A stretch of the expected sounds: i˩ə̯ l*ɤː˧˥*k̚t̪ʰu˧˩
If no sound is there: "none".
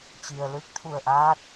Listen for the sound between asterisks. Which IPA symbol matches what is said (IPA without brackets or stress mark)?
ɯː˧˥